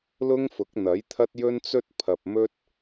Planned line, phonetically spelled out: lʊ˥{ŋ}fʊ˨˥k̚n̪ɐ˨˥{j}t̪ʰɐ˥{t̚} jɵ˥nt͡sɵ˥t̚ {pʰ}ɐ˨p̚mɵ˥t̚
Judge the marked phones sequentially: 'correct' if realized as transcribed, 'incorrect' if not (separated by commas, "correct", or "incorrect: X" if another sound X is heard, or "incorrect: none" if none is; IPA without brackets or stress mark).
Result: correct, correct, correct, correct